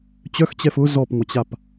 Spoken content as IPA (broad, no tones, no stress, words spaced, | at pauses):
t͡ɕœxt͡ɕɛf ʊ zɔpŋʷɐt͡ɕap